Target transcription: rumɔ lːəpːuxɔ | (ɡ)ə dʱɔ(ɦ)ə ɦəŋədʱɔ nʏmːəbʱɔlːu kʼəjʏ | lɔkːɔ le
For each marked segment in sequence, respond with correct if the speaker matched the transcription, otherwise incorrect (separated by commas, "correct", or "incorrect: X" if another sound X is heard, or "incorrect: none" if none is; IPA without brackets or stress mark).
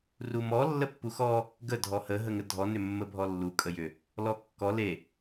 correct, incorrect: h